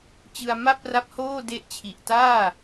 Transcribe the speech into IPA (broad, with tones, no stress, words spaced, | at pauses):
t͡ɕɯ˧a̯ ma˥˩p̚ra˦˥p̚hoː˥˩ de˦˥ʔt͡ɕʰi˨˩ʔtaː˥˩